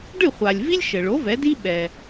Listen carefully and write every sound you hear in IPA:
ɖ ɨ˥˩ χʷ a˩ lʲ v i˥ lʲ ʃ ɘ˩ ɭ o˩˥ v ɛ˩˥ d i˥ ɓ ɛ˩

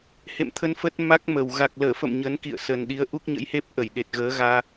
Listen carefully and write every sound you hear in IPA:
h ḛ˧˨ m t̪ʰ ə˧ n f ə˦˥ t̚ m a˦˥ k̚ m ə˨˩ w ɣ a˨˩ k̚ l əː˧˩ f ə̰˧˨ m ɲ ə˨˦ n k ḭ˧˨ ə̯ s ə˨˩ n ɗ i˨˦ ə̯ ʔ u˦˥ k̚ ɲ ə̰˧˥ j h e˦˥ p̚ ʔ ə˧˩ j ɗ e˨˩ t̚ ɣ əː˨˦ ɣ aː˧

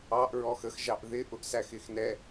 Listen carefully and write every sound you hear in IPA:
ɑ ʔ ɹ ɔ x ə x ʒ ɑ ʔ ð ɪ ʔ ʊ ʔ s æ x ɪ x n ɛ

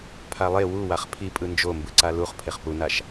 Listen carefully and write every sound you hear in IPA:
pʰ a lˠ e w u w a χ pʰ i pʼ ɯ n d͡ʒ o m b ɯ ǀ a l u χ pʰ e χ p u n a ʃ

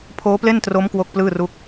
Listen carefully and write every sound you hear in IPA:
pʰ oː˦˥ p l e˥˩ n t r o˦˥ m k w o˥˩ k̚ p l ɯː˥˩ r u˥˩ k̚

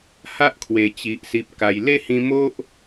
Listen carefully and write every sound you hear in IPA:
h a˦ ʔ kʰ w e˨˩ t͡ɕ i˨ ʔ s i˨ p̚ k a˨˩ j l e˦ h ĩ˧ m o˦ ʔ

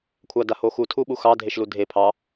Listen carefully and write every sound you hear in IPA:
kʷʰ a d a h o x u tʰ u ɓ u x ɑ dʱ e ʃ l u dʱ e pʰ ɑ

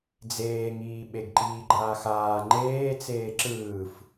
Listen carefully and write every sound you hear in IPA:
d͡z eː ŋ iː ɓ e ɡ ǃ iː ɡ͡ǃ aː x aː ŋ͡ǃ eː t͡s eː ǁ ɯː f

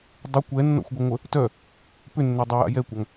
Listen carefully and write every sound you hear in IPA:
dˤ ɪ kʷ ɛ nː ɔ̰ xʷ ɡʷ ɐ ŋʷ ə | t œ | p ʏ nː œ dˤ ʏ j a̰ j ɛ kʷ a ŋ

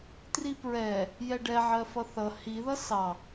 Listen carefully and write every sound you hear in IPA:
t r i p ɹ ɛ | j ɛ ɖ ɛ ʕ ɜ f ʌ θ ʌ h i ð ʌ s ɑ

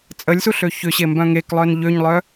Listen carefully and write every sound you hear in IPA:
t͡sʼ ə lʲ s u ɬ ø ç ʏ ɕ e m b œ̃ ŋ e k lˠ œ n ʎ ø ɲ lˠ œ

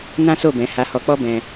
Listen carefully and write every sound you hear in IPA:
n ã˦ s o˦˨ b ɛ̃˨˦ h a˧ h ɔ˧ k͡p ɔ˦ b ɛ̃˧

